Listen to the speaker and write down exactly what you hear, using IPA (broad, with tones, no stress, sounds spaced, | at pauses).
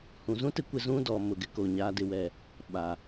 h ũ˨ z ũ˦ t ɪ˦ kʷ ɪ˦ z ũ˦ d ɔ˨ m ʊ˨ ɡ ɪ˦ k o˨ ɲ aː˨ d ɪ˨ w ɛ˨ | ɓ a˨